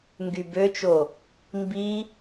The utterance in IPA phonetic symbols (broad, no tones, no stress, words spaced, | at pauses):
ŋɡybøt͡ʃo | mbi